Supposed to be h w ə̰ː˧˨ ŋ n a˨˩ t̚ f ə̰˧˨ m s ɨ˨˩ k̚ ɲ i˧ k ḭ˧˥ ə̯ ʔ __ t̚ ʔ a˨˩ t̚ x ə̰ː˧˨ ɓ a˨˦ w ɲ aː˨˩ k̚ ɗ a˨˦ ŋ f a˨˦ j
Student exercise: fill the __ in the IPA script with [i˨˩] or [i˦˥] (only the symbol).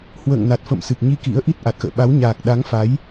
i˦˥